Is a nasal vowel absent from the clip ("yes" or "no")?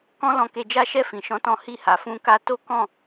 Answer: no